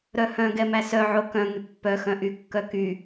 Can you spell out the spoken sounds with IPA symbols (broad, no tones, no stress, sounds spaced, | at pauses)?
ɾ œ h œ̃ ɡ ɛ m æ s œ ʕ o k œ̃ ŋ y pː œ x œ̃ ʔ y kː œ k y